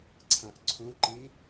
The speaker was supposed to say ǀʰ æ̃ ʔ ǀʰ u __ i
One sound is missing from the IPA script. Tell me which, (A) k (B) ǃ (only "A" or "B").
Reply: B